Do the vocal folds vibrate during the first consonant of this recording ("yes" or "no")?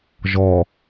yes